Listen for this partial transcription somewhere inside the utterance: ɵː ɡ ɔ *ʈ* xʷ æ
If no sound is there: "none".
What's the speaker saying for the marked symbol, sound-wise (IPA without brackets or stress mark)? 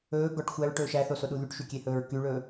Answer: ʈ